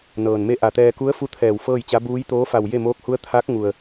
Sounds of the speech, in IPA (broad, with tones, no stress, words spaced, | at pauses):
nɤː˩nme˥˨ ʔa˧˩t̪ɛː˧ ku˧˥ə̯fu˧˥ t̪ʰɛː˧˩wfɤː˥˨jt͡ɕa˧˥ buː˧˥jt̪oː˧˥fa˧˩w je˥˨moː˧˥k̚hu˧˥ə̯ t̪ʰa˧˥k̚ ŋu˩ə̯